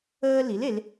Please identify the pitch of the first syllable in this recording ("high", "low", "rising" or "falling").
high